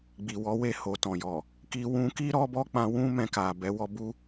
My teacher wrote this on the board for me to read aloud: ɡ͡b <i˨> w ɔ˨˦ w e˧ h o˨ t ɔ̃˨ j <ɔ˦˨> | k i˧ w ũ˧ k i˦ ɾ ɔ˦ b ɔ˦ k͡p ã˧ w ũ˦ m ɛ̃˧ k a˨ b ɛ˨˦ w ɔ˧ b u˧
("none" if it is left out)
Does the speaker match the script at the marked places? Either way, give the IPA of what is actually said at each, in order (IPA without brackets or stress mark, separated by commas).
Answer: i˨, ɔ˨